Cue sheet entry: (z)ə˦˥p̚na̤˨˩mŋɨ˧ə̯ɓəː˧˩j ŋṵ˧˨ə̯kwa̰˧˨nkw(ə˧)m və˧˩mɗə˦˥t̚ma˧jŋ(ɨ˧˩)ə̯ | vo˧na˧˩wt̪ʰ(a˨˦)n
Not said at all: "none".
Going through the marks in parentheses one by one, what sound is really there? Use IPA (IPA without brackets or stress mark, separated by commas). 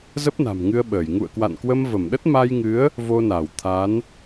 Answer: z, ə˧, ɨ˨˦, a˨˦